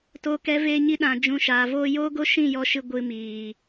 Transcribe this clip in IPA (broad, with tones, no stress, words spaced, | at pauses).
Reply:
to˦kɛ˦ veː˧ɲi˧ ɗã˧d͡ʒũ˧ ʃaː˨voː˧joː˦ ɡo˦ ʃĩ˦˨jɔ˧ ʃɨ˧ ɡʷɨ˧miː˨